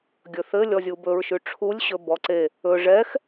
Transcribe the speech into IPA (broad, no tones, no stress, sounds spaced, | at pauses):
ɡʲ ɵ θ ɘ lʲ ɔ zʲ u b ɵ ɹ ʃ ʉ ʈ͡ʂʰ u lʲ ɕ ɵ b ɔ ǀ e | ɵ ʐ ɛ x